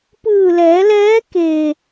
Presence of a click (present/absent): absent